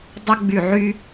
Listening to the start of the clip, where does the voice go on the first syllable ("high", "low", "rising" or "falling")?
high